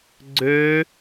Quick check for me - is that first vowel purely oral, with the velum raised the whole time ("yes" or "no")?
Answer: yes